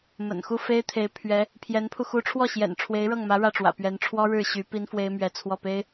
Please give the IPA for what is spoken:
m ə̰˨˩ n x u˥˩ f e˥ ɪ̯ t̪ʰ e˧˥ ɪ̯ pʰ ɥ ɛ˧˥ | pʰ j ɛ˧˥ n pʰ u˧ x u˧˥ ʈ͡ʂʰ w ɔ˥˩ ɕ j ɛ̰˨˩ n ʈ͡ʂʰ w e˧˥ ɪ̯ ɻ ɤ˥˩ ŋ m ä˧˥ ɻ ä˥˩ ʈ͡ʂ w ä̰˨˩ p ɥ ɛ˧˥ n ʈ͡ʂʰ w ɔ˥ ɻ ɻ̩˥˩ ɕ y˧˥ p i˥ n f w e˥ ɪ̯ m ɥ ɛ˧˥ t͡sʰ w ɔ˥˩ p e˥ ɪ̯

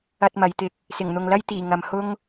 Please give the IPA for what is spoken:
ɐ˧ t̚ m ɐ˨˧ j t̪ ɪ˧ k̚ | s ɪ˨˩ ŋ n̪ ʊ˨ ŋ l ɐ˥ j t̪ iː˨˩ ŋ ɐ˨ m h ʊ˥ ŋ

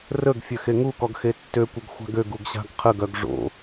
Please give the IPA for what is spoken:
r ə ɡ fʲ ø x e ŋ u k ɔ ɡ x e tː ø kʷ ə ɡ xʷ a̤ ɡ ø ɡ u ɡ ɕ a̤ ɡ qʰ ə ɡ œ ɡ ʐ o̰

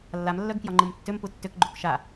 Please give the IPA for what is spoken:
lː a m lː œ ɡ k j ɒ ŋ͡ǃ ɯ m tː ʏ m p u tː ʏ k ɡ͡ǃ u k ʃ a

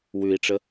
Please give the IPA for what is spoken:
w ʉ i̯ ʈ͡ʂ ə

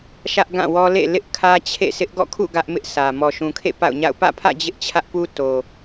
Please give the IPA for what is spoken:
ʃ ä˦ ʔ ɡ ã˦˨ w ɔ˦ l ḛ˦˨ l ɪ˦ ʔ kʰ ä˦ t͡ɕʰ ḛ˦˨ sʰ ɪ˦ ʔ ɡ ɔ̰˦˨ kʰ ṵ˦˨ ɡ ä˦ ʔ m ɪ˦ ʔ sʰ ä˨ m ɔ˨ ʃ ũ˨ kʰ ḛ˦˨ p a̰˦˨ ʊ̯ ɲ a̰˦˨ ʊ̯ p ä̰˦˨ pʰ ä̰˦˨ d͡ʑ ɪ˦ ʔ t͡ɕʰ ä˦ ʔ p u˦ t o˨

